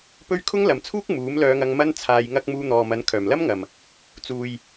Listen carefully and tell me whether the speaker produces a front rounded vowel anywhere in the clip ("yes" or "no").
yes